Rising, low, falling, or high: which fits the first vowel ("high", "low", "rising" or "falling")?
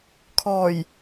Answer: low